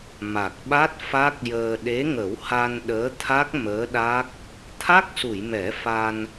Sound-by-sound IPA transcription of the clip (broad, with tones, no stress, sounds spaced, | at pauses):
m a˨˩ k̚ ɓ a˦˥ t̚ f a˦˥ k̚ j əː˧ ɗ e˧˥ ŋ ə˨˩˦ w h a˧ n ɗ əː˧˥ t̪ʰ a˦˥ k̚ m əː˧˥ ɗ a˦˥ k̚ | t̪ʰ a˦˥ k̚ s u˨˩˨ j m ɛ˨˩˦ f a˧ n